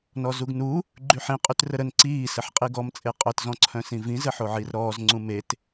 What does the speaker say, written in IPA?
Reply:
n ɔ z u ɡ n u | ɡ͡ǃ y ħ ĩ qʼ y t r ə ɾ ə n ǀ iː s ə ħ qʼ i ɡ ɔ m t͡sʼ e qʼ œ t z ɔ̃ ǀʰ œ̃ s ĩ v ĩ z ə ħ o ʕ i r ɾ ɔː z ŋ͡ǀ ũ m e t

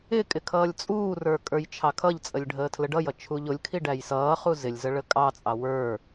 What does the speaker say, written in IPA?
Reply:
ɪ kʼ ɪ kʰ ʌː lʲ t͡sʼ uː r ə˞ kʼ ə˞ j t͡ʃʰ ɑ kʰ ʌ ʎ t͡sʼ ə lʲ ɖʱ əː tʰ l ə ɖ ʌ j ʌ t͡ʃʰ u ʎ ʊ lʲ kʰ i ɖ æ j s ʌː χ u z ɪ lʲ z ə ɭ ə kʼ ɑ t͡sʼ ɑ w ə˞

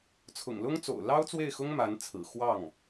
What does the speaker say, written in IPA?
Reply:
t͡sʰ ʊ̰˨˩ ŋ l ʊ˥ ŋ t͡s o̰˨˩ ʊ̯ l ɑ˥ ʊ̯ t͡s w e˥˩ ɪ̯ x ʊ˥ ŋ m a˧˥ n t͡sʰ ɹ̩˨˩ x w ɑ˥˩ ŋ

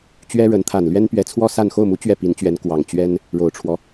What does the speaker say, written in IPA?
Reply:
t͡ɕ ɥ ɛ˥ ɻ ə˧˥ n t̪ʰ a˨˩ n l ɥ ɛ˥ n p ɥ ɛ˧˥ t͡sʰ w ɔ˥ s a˥˧ n x o˥˩ ʊ̯ m u˧˥ t͡ɕ ɥ ɛ˥˩ p i˧˥ n t͡ɕ ɥ ɛ˧˥ n k w ɑ˨˩ ŋ t͡ɕ ɥ ɛ˥ n | ɻ o˨˩ ʊ̯ ʈ͡ʂʰ w ɔ˦

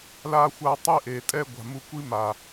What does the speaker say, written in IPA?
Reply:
l a˦ xʷ a˦˨ tˤ i˦ ʔ e˨ tʼ ɛ˦ ɡʷ a̤˨ m u˧ kʷ i˦ m a˨

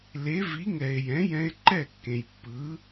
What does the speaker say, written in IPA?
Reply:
l e˩˥ v i˩˥ ŋ ɛ˩ e̯ j ɛ̃˩˥ j ɛ̃˧ e̯ ǃ ɛ˥˩ kː ẽ˩ j pː ɯ˩˥

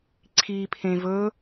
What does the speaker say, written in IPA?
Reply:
ǀʰ i pʰ ẽ v ɵ

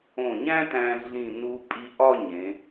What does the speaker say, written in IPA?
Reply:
õ˧˩ ɲ æ̃˥ t æ̃˧ ɮ ĩ˧˩ n u˧ pʼ i˧ ʔ ɒ˥˧ ɲ ẽ˩˧

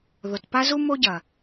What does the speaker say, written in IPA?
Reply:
ð o˨ t p a˦ z u˦ m o˦ ɟ ɐ˨

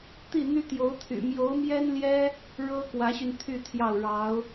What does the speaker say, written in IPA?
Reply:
t̪ i˥˩ n̪ y˥ t̪ j o˧˥ ʊ̯ t̪ʰ y̰˨˩ m j o˧˥ ʊ̯ m j ɛ˥ n l j ɛ˥ | ɻ ɤ˥ k w ä˧˥ ɕ y˧ n t̪ʰ y˥˧ t̪ʰ j ɑ˥˩ ʊ̯ ɻ ɑ˧˥ ʊ̯

